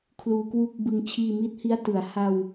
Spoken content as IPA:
kʰluː˧kwu˥˩k̚bɯ˧ŋ t͡ɕʰiː˧mi˦˥t̚hi˦˥a̯tɯ˩˦a̯ ha˧w

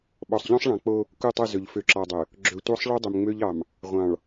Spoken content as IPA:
ɓɔ˨sˤʎɔ̃˦sˤɭɑ̃˨ k͡po˦ | ku˦˨tˤu˦˨zɵ˨ʎ fø˨ǁɑ˨dˤɵ˨ | ɡ͡ǁɵ˨ tʷɑ˦sˤɭu˦ dˤø˨mŋ͡mø˦ʎɑ˨m | ʁʷɑ̃˨ɭ

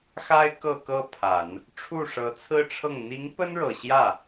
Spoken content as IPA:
xa˥ɪ̯ kɤ˥˧kɤ˥˩pʰa˨˩˦n | ʈ͡ʂʰu˥˩ʂɤ˧˥t͡sʰɹ̩˥ʈ͡ʂʰɤ˥˩ŋ n̪i˧˥ŋpə˥nɻɤ˨˩ ɕjä˥˩

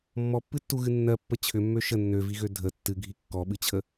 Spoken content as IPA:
mːɔpːɨtːuɣɨ nːɜpːə t͡ɕʰʏmːø ʃə nːøviɣø dʱə tːɨɡʱi kːɔɓɨt͡ɕʰə

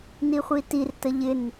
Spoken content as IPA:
niχʷitirtə ʎɪn

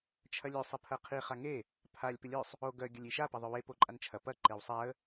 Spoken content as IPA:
t͡ʃʰɐlʲø sˤɪpʰɐqʰi χaŋe | pʰalʲ pɪlʲœsˤ | o ɡœ ɡʲɐlʲiʃa pɐðˤœwe poǃʼant͡ʃʰɐ pɐ ǃewsˤaə̯

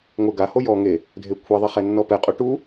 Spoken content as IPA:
ŋʷɘ ɡaho jɔ ŋe | dʱekʷʰeðˤi χɛnːɔpɛqʼo ʈu

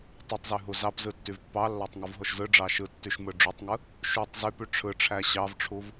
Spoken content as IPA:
tˤutˤzy ɦuzɑpzɯ tːyvpːɑlːɑtˤ ŋuvɦoʃzɯɖ͡ʐɑ ʃɯtːyʃ mɯɖ͡ʐotˤŋɯ | ʃutˤ zypy ʈ͡ʂʰɯ ʈ͡ʂʰæɕɑvʈ͡ʂʰuv

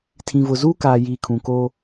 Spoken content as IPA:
tʰĩ˨vʊ˨ zuː˦kaː˨ jiː˨kʰũ˨koː˦

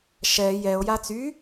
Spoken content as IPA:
ʃɛ jɛo̯ jat͡sy

